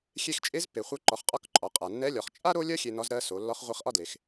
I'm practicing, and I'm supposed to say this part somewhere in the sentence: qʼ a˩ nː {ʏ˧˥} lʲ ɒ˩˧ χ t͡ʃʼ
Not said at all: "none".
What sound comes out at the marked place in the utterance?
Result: ɛ˧˥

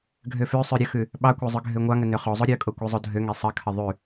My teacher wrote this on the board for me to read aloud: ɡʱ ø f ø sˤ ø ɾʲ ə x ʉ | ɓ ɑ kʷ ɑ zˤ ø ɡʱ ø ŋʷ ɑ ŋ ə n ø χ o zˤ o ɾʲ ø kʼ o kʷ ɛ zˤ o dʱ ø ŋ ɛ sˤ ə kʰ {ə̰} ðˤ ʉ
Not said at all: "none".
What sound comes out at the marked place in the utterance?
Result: ə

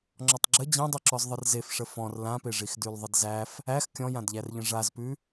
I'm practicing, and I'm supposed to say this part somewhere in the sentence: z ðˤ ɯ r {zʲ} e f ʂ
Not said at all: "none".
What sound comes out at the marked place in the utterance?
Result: z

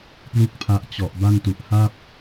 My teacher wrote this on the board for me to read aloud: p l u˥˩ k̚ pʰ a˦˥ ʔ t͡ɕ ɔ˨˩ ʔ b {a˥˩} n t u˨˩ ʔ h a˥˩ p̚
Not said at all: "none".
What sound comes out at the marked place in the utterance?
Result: a˥˩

